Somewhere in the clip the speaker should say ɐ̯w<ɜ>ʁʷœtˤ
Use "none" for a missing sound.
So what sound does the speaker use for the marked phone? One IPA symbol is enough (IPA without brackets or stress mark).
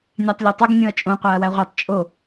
æ